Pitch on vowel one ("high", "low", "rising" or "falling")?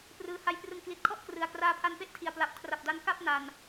low